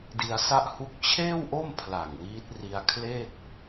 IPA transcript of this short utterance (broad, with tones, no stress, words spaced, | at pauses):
di˧a̯sa˥˩ʔhu˥˩k̚ t͡ɕʰeː˥˩wʔo˥˩m pʰla˨˩ŋwiː˦˥t̚ri˧a̯kʰle˥˩k̚